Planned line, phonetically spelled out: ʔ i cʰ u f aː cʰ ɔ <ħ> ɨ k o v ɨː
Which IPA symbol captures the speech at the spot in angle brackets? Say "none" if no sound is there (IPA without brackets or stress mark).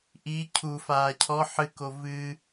ħ